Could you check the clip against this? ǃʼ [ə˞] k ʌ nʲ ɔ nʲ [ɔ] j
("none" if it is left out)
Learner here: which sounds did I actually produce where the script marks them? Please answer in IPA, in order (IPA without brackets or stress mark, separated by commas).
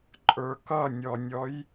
ə˞, ɔ